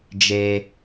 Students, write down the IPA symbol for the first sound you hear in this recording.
d͡ʒ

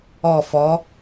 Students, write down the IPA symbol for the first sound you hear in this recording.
ɔ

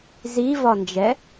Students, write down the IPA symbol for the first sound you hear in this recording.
z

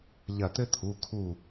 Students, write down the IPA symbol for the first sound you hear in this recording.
ʎ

